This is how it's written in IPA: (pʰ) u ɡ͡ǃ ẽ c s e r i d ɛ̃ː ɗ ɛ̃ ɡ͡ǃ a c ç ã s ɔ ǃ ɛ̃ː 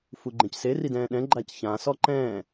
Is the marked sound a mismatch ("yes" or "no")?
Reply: yes